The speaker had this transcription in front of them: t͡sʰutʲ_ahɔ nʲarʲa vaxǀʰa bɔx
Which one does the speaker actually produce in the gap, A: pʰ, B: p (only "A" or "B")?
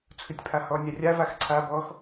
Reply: A